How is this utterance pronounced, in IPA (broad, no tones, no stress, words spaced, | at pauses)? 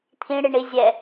t̪ʰĩɽiɳi zʲɛ